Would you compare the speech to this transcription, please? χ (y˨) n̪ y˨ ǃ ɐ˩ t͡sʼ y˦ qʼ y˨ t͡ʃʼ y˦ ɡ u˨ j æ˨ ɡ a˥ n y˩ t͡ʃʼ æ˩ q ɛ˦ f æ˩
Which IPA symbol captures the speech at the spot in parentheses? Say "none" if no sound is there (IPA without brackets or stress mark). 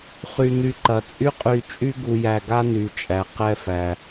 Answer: y˨